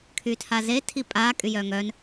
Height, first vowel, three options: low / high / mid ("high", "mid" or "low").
high